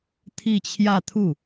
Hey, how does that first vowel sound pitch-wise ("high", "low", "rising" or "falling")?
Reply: falling